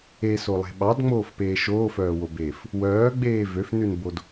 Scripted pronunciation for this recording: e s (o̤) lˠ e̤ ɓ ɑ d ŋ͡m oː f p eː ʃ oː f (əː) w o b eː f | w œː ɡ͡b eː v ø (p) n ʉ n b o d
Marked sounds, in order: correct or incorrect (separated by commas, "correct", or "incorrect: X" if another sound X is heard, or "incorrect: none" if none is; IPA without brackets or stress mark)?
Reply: incorrect: o, incorrect: œː, incorrect: f